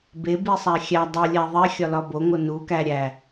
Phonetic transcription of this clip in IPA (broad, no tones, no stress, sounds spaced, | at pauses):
b e b i sˤ æ xʲ æ dˤ e lʲ æ ðˤ e xʲ ɒ l ɒ b o ŋ o n u k æ ɾʲ æ